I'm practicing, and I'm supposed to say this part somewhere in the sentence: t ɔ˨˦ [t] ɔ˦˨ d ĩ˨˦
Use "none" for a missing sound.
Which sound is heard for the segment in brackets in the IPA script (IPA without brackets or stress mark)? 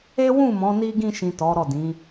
ɾ